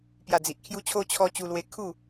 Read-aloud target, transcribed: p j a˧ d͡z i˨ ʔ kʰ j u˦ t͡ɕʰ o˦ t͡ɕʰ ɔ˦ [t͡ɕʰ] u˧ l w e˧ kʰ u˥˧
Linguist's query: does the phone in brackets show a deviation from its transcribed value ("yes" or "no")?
yes